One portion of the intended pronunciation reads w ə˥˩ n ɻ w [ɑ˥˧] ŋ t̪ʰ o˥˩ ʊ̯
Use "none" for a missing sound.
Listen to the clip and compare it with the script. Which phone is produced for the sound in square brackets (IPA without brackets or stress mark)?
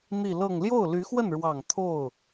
ɑ˨˩